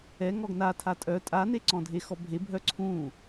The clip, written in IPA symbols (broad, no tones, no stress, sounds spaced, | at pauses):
ɛ ŋ ɔ ɡ n a tʰ a tʼ œ tʼ a n e ǀ ɔ̃ dʱ e x ɔ bʱ e bʱ œ ǀʰ ũ